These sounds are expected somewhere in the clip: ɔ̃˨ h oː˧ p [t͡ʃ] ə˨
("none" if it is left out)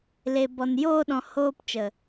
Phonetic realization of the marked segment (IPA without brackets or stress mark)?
t͡ʃ